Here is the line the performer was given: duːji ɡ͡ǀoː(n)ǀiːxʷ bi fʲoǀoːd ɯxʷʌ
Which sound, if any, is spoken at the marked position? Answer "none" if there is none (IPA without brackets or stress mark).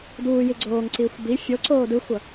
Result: ŋ